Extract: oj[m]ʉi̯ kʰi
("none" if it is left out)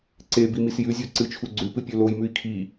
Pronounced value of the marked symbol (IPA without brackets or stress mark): m